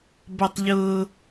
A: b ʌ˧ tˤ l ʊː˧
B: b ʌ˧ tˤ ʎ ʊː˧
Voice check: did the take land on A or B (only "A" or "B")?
B